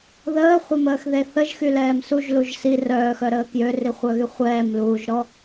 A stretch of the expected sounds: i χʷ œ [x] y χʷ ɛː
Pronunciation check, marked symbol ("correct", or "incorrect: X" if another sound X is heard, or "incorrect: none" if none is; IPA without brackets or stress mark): incorrect: ɣ